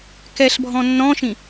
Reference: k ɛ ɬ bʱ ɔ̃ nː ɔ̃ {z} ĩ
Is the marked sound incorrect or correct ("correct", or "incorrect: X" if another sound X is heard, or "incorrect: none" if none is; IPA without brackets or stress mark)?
incorrect: ʃ